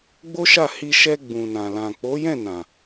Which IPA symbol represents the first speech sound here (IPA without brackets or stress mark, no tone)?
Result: ɡ͡b